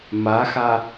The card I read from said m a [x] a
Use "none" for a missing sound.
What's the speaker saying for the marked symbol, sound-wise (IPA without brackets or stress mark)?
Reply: x